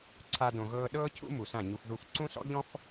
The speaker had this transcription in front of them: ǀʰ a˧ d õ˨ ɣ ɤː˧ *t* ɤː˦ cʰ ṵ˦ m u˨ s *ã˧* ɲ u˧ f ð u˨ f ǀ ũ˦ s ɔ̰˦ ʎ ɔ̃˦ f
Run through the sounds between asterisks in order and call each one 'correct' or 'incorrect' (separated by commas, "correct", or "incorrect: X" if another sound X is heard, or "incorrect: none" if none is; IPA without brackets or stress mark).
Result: incorrect: ɗ, incorrect: ã˦˨